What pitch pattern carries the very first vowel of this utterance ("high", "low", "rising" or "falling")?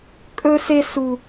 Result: high